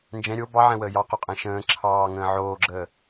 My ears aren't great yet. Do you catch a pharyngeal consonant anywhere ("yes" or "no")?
yes